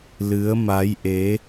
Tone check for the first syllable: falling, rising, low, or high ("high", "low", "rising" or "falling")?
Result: rising